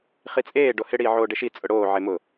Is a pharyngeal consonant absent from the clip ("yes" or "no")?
no